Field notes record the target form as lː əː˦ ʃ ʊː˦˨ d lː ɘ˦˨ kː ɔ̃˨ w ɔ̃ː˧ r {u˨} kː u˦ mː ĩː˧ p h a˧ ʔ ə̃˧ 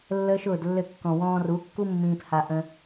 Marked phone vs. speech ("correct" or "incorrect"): incorrect